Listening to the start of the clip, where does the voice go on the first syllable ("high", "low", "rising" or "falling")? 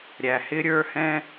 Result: low